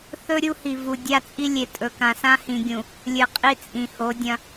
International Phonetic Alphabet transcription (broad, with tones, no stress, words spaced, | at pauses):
θɵ˦ ɾʲu˦hi˨ vu˨ dʲa˦t͡sʼi˦lʲe˨ tʼɵ˨kã˨ sã˦hĩ˨ɡʲũ˨ | lʲɨ˨qʼi˦t͡sʼĩ˨ ho˨˦dʲɐ̃˦